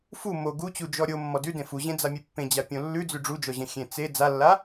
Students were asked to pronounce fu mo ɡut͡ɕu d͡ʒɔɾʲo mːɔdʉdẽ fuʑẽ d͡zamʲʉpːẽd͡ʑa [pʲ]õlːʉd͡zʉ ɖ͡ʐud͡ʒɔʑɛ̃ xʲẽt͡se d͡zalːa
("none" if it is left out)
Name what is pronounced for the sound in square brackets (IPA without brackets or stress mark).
pʲ